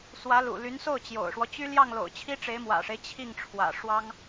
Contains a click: no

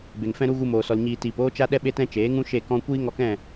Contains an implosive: yes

